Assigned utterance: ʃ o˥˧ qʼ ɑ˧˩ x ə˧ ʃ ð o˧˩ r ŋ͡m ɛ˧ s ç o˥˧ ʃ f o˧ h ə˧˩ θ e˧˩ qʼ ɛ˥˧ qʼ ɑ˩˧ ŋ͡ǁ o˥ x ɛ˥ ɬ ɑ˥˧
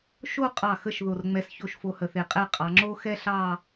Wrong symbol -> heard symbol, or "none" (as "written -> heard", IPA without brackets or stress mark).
none